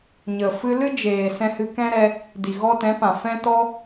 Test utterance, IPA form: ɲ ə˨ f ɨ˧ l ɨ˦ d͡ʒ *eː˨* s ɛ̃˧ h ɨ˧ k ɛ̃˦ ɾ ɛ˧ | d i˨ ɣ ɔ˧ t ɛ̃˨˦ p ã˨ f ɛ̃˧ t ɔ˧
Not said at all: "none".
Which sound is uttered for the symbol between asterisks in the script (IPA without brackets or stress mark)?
eː˨